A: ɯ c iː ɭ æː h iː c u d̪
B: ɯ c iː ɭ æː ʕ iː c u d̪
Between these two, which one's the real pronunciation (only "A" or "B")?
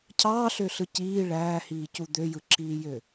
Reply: A